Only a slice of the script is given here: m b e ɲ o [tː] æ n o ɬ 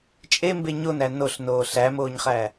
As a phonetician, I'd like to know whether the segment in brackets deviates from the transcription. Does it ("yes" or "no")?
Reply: yes